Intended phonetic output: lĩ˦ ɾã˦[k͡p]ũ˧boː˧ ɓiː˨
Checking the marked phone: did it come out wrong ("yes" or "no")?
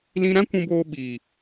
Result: yes